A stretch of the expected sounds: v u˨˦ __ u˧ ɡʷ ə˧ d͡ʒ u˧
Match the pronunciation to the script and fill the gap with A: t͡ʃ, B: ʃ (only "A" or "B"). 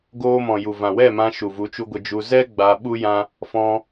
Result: A